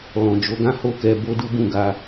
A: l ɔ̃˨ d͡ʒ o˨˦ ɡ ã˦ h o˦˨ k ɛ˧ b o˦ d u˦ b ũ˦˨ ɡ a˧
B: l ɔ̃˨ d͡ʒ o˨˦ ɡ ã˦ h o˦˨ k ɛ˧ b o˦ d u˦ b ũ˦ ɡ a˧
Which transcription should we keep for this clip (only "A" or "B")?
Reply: A